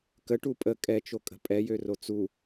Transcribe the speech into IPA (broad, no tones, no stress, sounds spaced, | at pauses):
k ə ʈ u pʼ ə kʼ ɛ t͡ʃ o kʼ ə̤ pʼ ɛ j ø r o t͡s u